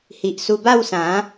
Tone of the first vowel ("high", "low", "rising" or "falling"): low